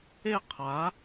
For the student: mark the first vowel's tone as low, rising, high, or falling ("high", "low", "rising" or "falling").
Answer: falling